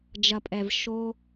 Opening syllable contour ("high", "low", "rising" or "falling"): low